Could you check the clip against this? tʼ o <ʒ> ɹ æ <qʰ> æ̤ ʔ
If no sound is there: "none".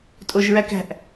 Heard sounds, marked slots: ʒ, k

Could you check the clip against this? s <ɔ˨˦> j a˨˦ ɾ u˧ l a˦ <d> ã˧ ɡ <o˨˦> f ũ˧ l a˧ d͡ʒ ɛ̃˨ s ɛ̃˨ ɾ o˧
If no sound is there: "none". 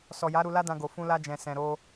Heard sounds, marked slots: ɔ˨, d, o˨

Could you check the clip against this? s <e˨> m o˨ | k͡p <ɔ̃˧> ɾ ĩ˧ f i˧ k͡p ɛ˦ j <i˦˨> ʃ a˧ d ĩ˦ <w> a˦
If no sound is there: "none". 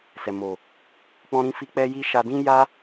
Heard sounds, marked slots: ɛ˨, ɔ̃˧, i˦, j

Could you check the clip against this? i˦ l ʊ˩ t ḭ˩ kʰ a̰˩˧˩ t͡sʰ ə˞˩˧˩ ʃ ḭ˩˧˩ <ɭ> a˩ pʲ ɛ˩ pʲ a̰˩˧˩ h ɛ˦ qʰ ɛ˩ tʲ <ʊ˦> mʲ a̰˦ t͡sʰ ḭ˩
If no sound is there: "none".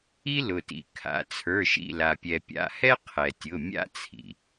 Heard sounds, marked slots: l, ʊ˩˧˩

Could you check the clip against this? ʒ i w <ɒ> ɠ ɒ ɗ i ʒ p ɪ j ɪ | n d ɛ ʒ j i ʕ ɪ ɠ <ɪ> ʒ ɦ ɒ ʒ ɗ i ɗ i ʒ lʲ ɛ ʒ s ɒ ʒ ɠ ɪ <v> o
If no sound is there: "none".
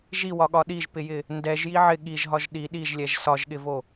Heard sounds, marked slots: ɒ, i, v

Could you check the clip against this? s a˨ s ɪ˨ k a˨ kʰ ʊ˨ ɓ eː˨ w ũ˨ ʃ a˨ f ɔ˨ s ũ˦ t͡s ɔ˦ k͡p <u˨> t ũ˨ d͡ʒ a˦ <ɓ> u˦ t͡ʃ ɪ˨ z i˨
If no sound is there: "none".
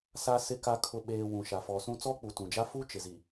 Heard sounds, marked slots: u˨, f

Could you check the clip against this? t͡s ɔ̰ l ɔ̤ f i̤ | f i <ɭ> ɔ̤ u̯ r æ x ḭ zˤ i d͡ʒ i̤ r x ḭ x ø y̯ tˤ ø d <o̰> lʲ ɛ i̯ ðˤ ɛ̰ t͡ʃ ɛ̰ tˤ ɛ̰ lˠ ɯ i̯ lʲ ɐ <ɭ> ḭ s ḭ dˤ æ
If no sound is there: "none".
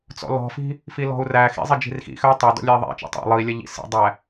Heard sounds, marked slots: l, ɔ̰, ʎ

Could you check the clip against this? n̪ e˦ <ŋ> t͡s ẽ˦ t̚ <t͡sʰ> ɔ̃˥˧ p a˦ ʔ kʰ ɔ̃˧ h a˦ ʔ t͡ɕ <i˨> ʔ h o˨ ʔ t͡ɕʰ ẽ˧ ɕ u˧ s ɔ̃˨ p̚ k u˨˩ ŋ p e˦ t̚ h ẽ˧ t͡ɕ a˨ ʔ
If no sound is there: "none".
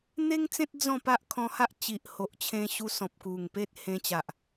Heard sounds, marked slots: ŋ, d͡z, i˨

